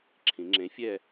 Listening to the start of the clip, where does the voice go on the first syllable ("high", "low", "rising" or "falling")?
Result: rising